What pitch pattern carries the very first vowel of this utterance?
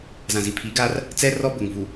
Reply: low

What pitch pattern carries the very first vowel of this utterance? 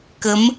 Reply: rising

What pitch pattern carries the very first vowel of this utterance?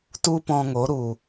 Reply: high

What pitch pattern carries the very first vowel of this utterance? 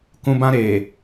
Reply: high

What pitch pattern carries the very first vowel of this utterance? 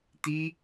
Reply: high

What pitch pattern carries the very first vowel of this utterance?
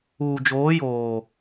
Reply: low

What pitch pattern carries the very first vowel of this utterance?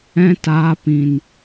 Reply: high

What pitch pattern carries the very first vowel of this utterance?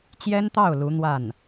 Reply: high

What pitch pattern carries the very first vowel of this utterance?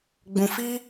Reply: low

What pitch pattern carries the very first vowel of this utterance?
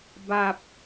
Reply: low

